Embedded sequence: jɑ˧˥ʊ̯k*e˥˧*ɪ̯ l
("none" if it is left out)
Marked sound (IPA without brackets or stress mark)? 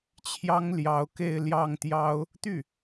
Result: e˥˧